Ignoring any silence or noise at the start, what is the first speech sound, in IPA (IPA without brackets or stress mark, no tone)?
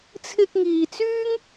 t͡sʰ